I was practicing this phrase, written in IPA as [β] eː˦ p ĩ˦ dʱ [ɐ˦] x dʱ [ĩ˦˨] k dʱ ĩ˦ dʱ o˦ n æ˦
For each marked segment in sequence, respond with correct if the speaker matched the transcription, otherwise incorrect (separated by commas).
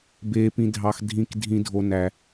incorrect, incorrect, correct